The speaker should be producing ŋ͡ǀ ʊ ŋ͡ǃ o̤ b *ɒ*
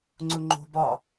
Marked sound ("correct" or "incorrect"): correct